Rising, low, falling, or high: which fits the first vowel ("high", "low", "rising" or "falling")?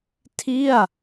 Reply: falling